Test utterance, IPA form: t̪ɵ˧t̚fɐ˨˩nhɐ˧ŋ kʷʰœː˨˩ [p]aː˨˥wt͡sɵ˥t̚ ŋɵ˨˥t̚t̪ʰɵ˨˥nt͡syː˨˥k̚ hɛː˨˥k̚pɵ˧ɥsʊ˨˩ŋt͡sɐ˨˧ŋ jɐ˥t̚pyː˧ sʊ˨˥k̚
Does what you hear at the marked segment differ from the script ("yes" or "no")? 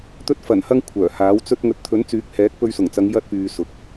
yes